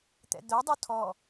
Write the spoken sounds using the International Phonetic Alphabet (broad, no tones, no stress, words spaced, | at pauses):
t̪ɛ̰d̪œ dˤutʰɔ